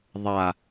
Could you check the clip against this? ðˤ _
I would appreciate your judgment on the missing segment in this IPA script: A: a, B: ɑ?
A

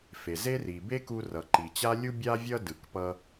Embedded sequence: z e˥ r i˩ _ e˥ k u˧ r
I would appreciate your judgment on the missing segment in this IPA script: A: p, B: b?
B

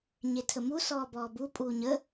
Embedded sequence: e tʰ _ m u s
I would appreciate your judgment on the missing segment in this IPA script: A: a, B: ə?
B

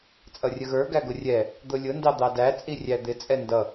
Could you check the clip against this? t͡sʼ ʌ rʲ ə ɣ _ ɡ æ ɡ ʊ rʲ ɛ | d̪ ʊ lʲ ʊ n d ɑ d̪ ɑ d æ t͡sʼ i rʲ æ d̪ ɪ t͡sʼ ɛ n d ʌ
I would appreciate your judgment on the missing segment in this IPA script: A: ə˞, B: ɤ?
A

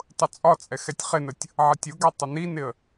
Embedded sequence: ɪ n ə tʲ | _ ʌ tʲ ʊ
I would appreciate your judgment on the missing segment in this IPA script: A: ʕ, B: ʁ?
A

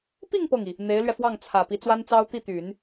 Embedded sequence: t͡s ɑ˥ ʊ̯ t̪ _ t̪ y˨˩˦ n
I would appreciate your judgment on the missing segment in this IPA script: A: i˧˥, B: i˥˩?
B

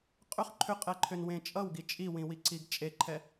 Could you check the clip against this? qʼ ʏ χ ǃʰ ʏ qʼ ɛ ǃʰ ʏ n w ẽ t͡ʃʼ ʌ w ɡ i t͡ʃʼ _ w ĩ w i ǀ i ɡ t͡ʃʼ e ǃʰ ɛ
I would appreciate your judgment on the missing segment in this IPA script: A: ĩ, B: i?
B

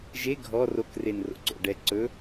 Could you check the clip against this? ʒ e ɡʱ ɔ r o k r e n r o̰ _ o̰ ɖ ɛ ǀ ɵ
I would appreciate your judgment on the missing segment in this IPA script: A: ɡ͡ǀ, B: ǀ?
B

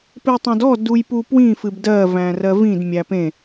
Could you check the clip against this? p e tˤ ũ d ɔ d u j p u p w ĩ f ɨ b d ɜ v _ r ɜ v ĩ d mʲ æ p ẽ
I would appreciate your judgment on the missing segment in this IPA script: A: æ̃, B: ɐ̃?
A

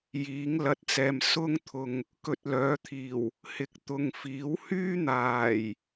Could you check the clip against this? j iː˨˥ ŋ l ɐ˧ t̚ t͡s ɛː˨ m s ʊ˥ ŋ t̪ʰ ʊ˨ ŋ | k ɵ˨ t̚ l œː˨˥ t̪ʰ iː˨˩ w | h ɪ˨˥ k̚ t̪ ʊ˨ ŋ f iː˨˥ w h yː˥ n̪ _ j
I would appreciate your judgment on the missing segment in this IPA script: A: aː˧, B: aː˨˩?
B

